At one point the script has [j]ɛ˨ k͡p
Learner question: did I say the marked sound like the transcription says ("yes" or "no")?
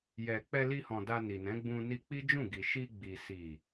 yes